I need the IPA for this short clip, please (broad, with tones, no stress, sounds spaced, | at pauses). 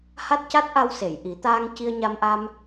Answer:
h a˦˥ t̚ c a˦˥ t̚ ʔ a˧ w s e˨˩˨ j ʔ i˨˩˦ t̪ aː˧ ŋ c i˧ ə̯ ɲ a˧ m ʔ a˧ m